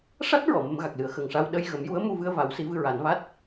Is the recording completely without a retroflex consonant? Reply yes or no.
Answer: no